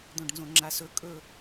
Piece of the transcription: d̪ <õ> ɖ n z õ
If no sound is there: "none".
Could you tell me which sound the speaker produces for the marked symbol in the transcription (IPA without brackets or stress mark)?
õ